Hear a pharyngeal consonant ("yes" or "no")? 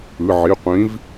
yes